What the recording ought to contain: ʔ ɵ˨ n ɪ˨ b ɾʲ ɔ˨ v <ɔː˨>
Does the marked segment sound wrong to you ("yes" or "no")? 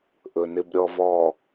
no